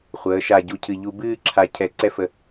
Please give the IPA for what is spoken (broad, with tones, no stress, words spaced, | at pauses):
χʷəː˩˧ʃa˧˩ɟu˧˩cʰɨ˧˩ ʎu˧bɨː˥˧ ǁʰa˧ cʰɛ˧˩ǀɛ˥fə˧